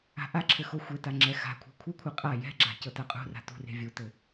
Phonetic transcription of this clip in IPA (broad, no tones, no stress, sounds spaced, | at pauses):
a̤ ʔ a ǁʰ ɘ x o xʷ e t a ŋ͡ǁ ɛ x a̤ kʷʰ e̤ kʷʰ ɛ kʷʰ ɘ qʼ a j ɛ̤ ɡ͡ǁ a̤ c ɤ t a qʼ ṳ r a̤ t ṳ r e̤ vʲ u t ɘ